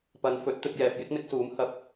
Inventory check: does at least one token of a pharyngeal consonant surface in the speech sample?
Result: no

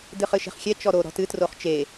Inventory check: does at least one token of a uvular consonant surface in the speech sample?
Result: yes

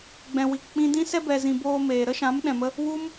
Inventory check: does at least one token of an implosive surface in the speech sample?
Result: yes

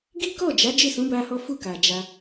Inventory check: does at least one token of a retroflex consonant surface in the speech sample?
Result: no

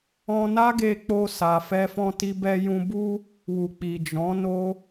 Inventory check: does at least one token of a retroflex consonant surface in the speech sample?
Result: no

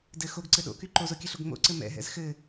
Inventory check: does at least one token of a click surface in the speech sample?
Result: yes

